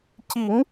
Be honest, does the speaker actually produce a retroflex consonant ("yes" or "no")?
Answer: no